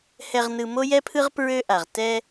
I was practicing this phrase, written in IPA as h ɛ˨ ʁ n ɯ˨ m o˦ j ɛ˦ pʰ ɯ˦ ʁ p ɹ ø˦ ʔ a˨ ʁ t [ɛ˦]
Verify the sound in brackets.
correct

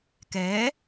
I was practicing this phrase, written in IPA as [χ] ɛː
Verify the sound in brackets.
incorrect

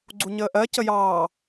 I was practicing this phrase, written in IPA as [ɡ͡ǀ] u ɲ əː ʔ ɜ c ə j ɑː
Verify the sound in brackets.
correct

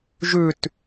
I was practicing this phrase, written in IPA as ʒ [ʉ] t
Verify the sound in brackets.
correct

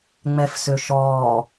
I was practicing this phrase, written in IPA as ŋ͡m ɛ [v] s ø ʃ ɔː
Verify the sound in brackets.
incorrect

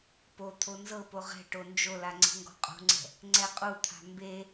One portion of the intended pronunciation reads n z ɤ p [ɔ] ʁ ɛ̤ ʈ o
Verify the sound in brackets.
incorrect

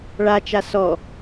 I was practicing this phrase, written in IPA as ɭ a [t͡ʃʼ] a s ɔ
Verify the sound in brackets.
incorrect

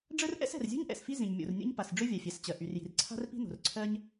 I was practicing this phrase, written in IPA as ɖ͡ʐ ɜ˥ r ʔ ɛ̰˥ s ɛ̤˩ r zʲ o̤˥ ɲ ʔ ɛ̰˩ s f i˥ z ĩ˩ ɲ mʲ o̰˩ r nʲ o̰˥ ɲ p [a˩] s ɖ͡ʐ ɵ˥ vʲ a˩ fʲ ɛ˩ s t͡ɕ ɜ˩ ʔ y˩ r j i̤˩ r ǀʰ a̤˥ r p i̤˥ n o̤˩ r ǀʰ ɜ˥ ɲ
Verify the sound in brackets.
correct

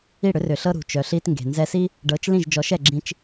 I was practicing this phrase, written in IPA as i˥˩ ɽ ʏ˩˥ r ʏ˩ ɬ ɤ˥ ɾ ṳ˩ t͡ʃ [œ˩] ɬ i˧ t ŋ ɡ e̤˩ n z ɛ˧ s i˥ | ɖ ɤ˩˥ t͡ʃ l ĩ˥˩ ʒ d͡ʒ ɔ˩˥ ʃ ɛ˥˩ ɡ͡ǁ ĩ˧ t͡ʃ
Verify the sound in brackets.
correct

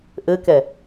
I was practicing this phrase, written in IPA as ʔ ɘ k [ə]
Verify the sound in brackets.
incorrect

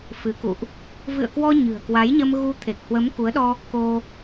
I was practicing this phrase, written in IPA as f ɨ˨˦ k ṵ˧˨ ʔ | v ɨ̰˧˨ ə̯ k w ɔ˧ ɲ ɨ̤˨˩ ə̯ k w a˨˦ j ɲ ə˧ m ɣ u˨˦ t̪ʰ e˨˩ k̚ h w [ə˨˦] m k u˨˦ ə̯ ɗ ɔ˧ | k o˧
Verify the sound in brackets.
correct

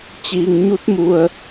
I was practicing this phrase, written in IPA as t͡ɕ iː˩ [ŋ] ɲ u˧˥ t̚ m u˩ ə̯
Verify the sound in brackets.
correct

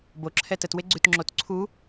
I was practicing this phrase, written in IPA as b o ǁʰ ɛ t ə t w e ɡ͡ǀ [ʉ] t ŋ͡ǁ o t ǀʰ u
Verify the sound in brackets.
correct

